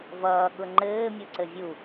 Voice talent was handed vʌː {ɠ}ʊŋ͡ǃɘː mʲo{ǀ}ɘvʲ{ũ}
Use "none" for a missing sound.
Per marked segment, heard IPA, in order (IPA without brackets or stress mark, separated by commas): ɠ, ǀ, u